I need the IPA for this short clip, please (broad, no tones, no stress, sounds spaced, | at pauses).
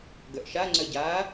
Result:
ɡ œ ʔ ʃ a ŋ͡ǀ œ ɟ aː